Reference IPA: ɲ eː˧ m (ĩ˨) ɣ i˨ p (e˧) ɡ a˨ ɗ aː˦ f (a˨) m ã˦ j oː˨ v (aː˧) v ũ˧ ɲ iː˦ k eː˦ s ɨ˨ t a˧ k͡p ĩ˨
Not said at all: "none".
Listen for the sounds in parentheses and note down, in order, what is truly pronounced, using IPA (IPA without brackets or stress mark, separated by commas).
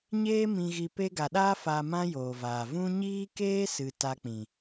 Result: ĩ˨, e˧, a˨, aː˨